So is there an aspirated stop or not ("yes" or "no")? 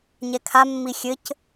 yes